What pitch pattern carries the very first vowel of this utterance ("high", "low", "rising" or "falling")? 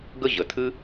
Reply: high